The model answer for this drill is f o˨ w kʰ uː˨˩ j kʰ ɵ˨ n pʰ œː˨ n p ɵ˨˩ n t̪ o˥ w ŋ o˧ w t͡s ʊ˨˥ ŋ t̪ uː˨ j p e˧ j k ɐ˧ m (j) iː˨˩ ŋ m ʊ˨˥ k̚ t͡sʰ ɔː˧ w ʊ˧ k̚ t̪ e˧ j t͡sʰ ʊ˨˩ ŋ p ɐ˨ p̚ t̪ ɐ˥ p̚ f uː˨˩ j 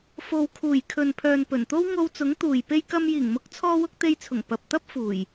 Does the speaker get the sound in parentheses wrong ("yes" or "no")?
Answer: no